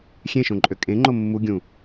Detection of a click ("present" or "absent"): present